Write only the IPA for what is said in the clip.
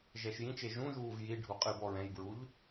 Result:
ʒɛʃjĩt͡ʃe ʒũʒuːv jiɖʱu qʼɨbɔ ɹɛ̃jbɹuʎ

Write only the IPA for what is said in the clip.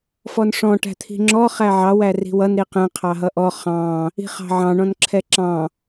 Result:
fɔnʂɔ̃ ʈæ̤t̪ʰi̤ŋ͡ǁɔ χæʕɑ wæri̤wʌn ɾiqɛ̃ qʰɑɦʌʔɔ χɑ̃ | i̤χɑ̤ʕɑ̃ ɳɔ̃nǁʰɛǁɑ̃

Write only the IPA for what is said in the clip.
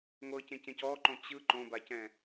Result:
ŋʷɤcẽcẽc ɔǃõ t͡ɕɯ ǃõbacɛ̃

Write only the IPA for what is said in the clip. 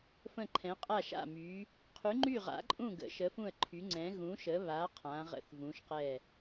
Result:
fə̃˧˩ǃʰɛ̃˩˧qʼa˧˩ʃa̰˧˩ my˩˧ | qʰy˩˧ŋ͡ǃy˧˩ʁa̰˩˧ ǃʼũ˧˩ ɡə̰˩˧ ʃə˩˧fũ˧˩ə̯ ǃʰy˩˧ŋ͡ǀɛ̃˩˧ ɣũ˩˧ʃə˩˧βa˩˧ qʰã˩˧ʁə̰˧˩θvũ˩˧ʃqɛ˧˩

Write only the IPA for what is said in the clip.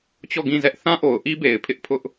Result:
t͡ɕɔ˦˨ɡĩ˦˨zɛ˦ʔ θã˦ʔo˨ʊ̯ʔi˦ be˨ɪ̯pʰɪ˦ʔpʰʊ˦ʔ

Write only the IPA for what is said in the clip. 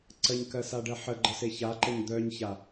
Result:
ǀəɲkɜsaɖɜ ħəɡ͡ǃəse çaǃəɲ d̪œɲça

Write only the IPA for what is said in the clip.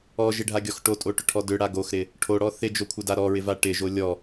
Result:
ɔʒɪɖʱaɡʲɔx ʈotʼoʈʏʈʰɔ dʏɽa ɡoxɾɪ | ʈʰoɽɔ θɪd͡ʒokʷʰɪda ɾɔɹɪva ʈɪʒo lʲɔ

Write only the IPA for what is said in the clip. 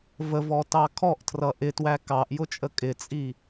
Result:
vəvɔtɑ kʰɔʔtʰrʌ ʔɪtwæ kɑʔjʊt͡ʃʼə kʼɪt͡sʼi

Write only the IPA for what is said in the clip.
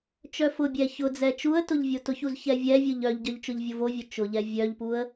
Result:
t͡ʃœfʊbʲɛ çʊ d͡zɛt͡ʃuə̯tʊʎ vʲotʊçuz çɛvʲɛvʲʊʎ œʎɟœʎ t͡ʃʊʎvʲovovʲœ t͡ʃʊʎɛ vʲœʎpuə̯

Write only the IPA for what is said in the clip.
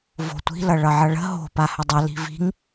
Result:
vo̤tʷi̤ lʌɭʌʕʌɭə̤ ɦo̤ pahədˤʌ li̤vi̤ŋ

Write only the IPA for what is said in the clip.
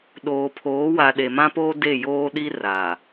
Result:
ɗoː˨pʰoː˨˦ wa˨ɗe˨mã˦poː˦ de˦˨joː˦ɗi˦ ra˨

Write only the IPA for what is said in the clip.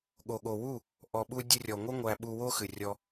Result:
ɠo˨ ɠo˨wu˦˨ | ʔɔ˨ɓu˧ dʲɨ˧rʲɔ˨ŋʷɨ˦ ŋʷæ˧ ɓu˧ wo˦xɨ˨rʲɔ˧

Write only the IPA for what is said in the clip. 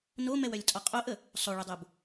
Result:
nomɛwœlʲtʼɔ qʼoʔə | sˤoɭʊdˤob

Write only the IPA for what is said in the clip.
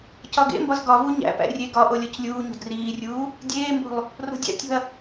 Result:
cɒɡḛmbɒz ɡɒvu ɲæ̰pæ̰ rʲe ɡɒʔo lʲɒclʲuːɲo̤d riːrʲuː | dʲeːmbo̤lˠ | ro̤dʲæ̰tʲo̤ɐ̯

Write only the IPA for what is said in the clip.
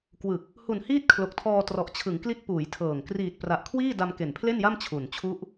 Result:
kwɯ˨˩k̚ | hu˨˩nhiː˦˥t̚ kʰlo˨˩k̚tʰɔː˧ trɔ˨˩ʔt͡ɕʰɯ˩˦ŋkli˦˥t̚ puː˩˦jtʰɤː˨˩ŋ kriː˨˩t̚pra˨˩ʔkʰwiː˥˩ da˧mke˨˩npʰle˥˩nja˥˩m t͡ɕʰu˨˩n t͡ɕʰu˦˥ʔ

